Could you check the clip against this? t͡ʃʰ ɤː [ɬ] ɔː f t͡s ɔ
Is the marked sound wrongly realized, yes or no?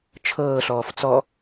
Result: no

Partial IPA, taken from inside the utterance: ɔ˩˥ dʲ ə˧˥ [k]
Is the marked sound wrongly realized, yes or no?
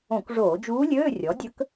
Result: no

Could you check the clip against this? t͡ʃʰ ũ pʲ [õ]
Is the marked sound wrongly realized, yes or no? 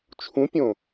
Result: no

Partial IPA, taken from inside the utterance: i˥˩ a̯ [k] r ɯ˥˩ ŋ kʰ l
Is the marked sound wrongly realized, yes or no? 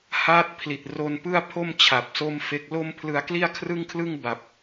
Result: yes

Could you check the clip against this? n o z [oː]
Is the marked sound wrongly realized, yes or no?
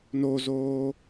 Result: no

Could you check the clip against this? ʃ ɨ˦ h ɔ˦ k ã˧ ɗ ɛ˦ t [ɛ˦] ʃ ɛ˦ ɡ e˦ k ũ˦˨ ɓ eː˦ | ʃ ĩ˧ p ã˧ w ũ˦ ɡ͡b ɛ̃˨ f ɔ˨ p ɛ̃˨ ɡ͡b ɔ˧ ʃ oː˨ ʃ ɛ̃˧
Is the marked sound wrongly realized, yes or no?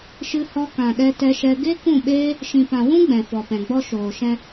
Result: no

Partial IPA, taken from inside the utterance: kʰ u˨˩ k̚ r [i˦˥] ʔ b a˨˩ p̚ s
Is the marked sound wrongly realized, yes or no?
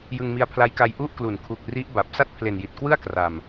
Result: no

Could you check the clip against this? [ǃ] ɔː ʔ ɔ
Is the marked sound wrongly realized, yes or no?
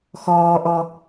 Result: yes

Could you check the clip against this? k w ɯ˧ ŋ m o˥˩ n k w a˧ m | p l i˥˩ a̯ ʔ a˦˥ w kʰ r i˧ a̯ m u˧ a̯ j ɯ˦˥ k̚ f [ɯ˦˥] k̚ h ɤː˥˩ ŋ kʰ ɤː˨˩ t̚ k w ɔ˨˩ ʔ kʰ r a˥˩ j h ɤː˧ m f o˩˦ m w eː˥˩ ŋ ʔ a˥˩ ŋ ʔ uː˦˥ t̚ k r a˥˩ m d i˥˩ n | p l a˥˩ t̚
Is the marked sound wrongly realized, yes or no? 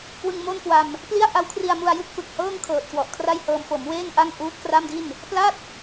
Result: yes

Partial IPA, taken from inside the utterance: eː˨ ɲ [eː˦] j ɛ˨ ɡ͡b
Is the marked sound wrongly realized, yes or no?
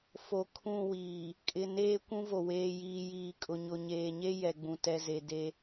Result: yes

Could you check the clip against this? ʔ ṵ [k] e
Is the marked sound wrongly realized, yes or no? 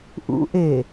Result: yes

